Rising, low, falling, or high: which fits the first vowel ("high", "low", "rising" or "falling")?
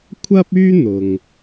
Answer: high